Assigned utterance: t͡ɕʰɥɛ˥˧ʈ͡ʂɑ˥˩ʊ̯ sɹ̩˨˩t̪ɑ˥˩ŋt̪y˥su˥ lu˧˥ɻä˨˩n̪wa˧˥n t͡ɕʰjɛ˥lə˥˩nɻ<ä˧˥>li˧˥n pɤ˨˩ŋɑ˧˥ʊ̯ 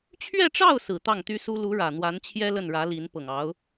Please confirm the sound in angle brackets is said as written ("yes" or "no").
yes